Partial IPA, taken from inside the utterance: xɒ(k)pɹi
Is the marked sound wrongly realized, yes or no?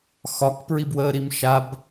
no